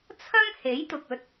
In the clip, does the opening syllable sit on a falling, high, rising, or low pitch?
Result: high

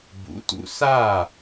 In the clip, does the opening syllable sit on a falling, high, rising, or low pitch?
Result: rising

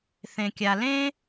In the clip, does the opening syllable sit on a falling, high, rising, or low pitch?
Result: low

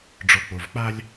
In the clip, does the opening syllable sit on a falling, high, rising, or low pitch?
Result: low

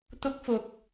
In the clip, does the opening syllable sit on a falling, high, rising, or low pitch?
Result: high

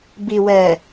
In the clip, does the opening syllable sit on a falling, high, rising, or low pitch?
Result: low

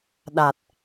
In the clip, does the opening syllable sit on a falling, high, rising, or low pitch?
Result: low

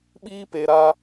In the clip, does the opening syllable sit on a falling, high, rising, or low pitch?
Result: high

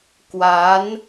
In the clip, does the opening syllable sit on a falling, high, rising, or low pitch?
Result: rising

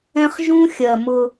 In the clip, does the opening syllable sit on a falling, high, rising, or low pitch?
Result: high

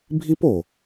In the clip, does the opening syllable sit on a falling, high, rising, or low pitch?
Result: high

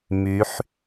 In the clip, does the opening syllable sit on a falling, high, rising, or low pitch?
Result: rising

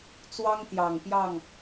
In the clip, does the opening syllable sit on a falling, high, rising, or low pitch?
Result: high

